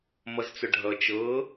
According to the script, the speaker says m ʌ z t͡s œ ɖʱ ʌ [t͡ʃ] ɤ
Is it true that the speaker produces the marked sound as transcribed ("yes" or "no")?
yes